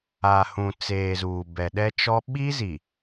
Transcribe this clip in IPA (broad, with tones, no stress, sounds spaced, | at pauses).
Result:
a˨ h ũ˨ t͡s eː˨ z uː˨ b ɛ˨ ɗ ɛ˦ t͡ʃ ɔ˦ ɓ i˦ z i˨